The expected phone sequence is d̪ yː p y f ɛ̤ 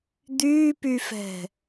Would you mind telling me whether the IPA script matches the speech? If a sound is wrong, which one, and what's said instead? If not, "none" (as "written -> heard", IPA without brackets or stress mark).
none